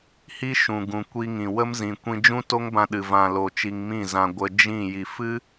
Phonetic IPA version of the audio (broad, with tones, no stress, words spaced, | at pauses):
hi˦ʃũ˨ɡũ˨ kʷi˧ŋĩ˨ wə˦mzĩ˨kʷĩ˧ d͡ʒũ˦to˦ŋbã˧ɗɨ˨ vã˨lo˨ t͡ʃi˧ŋmĩ˦˨zã˧ ɡʷə˧d͡ʒĩ˦˨ ji˨fɨ˦